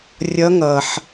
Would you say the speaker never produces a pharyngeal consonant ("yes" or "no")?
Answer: no